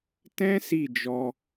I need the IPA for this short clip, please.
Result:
t ɛ̃˦ s i˦˨ d͡ʒ ɔ˧

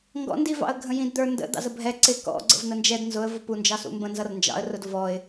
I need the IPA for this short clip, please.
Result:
ŋ ɡ ɔ̰ n d i v ɑ̰ ə̯ ɡʱ ə̃ j ĩ d d̪ ə˞ n d ə̰ d̪ ɑ̰ z ə bʱ ɛ ǀ ɪ k ɔ̰ ɡ͡ǀ ə̰ v n̪ ə n d͡ʒ ɛ d n z ʊ ə̯ v ʊ p u n d͡ʒ ɑ s ṵ m b ə̃ n z ʌ r n d͡ʒ ɑ̰ ə̯ r ʊ d v ɔ ɪ̯

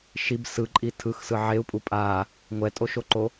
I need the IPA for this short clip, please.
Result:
ʃ i b s ɯ ǃʼ i tʰ ɯ x s ɯ ʕ e u̯ pʼ u pʼ a | ŋʷ ɛ tʼ o ʃ o ǃ o

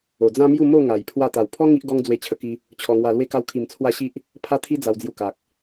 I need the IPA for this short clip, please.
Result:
o˨˩ d͡z ã˦ m j u˥˧ m o˥˧ ŋ a˨˩ j pʰ w a˧ t̪ a˨˩ w pʰ ɔ˦ ŋ i˦ ʔ ɡ ɔ˦ ŋ d͡z w e˧ t͡ɕʰ ə˧ k i˧ | t͡ɕʰ ɔ˧ ŋ w a˧ l w e˦ k a˦ w kʰ i˧ m t͡sʰ w a˦ ɕ i˦ ʔ | pʰ a˦ t̪ʰ i˦ d͡z a˧ w d͡z j u˧ k a˨ k̚

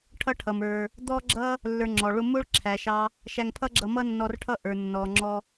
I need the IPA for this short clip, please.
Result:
ʈʰ ʌ˦ ʈʰ ʌ˨ m ə˞˨ | d̪ ɔ˦ ɡ͡ǁ ʌ˦ | lː ə˞˧ ŋ͡ǁ ɔ˨ ɭ ʊ˦ m ʊ˦ ɭ ǁʰ æ˨ ʃ ɑ˧ | ʃ æ˧ ŋ pʰ ʌ˦ ɡ͡ǁ ʌ˧ m ʌ˦ nː ɔ˧ r ʈʰ ʌ˦ ʔ ə˞˨ nː ɔ˨ ŋ͡ǁ ɔ˧

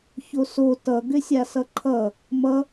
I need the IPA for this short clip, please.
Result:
ç o s o t ʌ ɡ ʏ sʲ a s ʌ ǃʰ ʌ | m ʌ

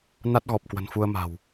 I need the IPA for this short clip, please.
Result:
n a˦˥ t̚ ɣ ɔ˨˩ p̚ k w ə̤˨˩ n f u˧ ə̯ m a̤˨˩ w

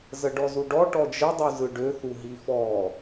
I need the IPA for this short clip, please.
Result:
z ə ɖ ɔ z u ɖ ɔ ʈ ɔ d͡ʒ ə dˤ u z ɯ ɖ ø θ u ɦ i f ɔ

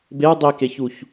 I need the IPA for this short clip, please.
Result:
b e ə̯ dˤ i k e ç u ç

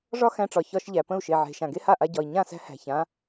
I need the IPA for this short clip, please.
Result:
ʐ ɒ˥ x æ̃˧ ʈ͡ʂ ɒ˩ ç ɒ˧ ʃ ʎ æ˩ p ə̃˥˩ u̯ ʃ e˩ ʕ e̤˩ ʃ ã˩ ɡ e˥ h a˥˩ ʔ a˧ ɟ ɒ˩ i̯ ɲ ã˥˩ s æ̤˥ h æ̤˩ ç ã˩˥

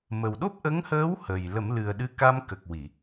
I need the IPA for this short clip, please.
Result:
m ə˨˩ w ɗ o˦˥ p̚ ʔ ə˧˥ ŋ h əː˧˥ w h ə˨˩ j l ə˨˩˦ m l ɨ˨˩ ə̯ ɗ ɨ˧˥ k a˧ m k ə˨˩ k̚ w i˨˩˨

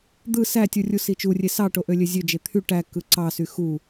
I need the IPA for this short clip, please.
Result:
d̪ ɯ s æ tʲ u rʲ u s i t͡ʃ u rʲ e s ɑ ʈ o ʔ ø lʲ ø zʲ ø d͡ʒ e t̪ʰ y ʈ æ k ɯ ǀ ɑ s y x u

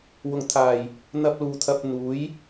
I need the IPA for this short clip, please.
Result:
w ʊ˨˩ ŋ t̪ʰ aː˨˩ j | n̪ ɐ˧ p̚ l uː˨ t̪ʰ ɐ˧ p̚ n̪ uː˨˥ j

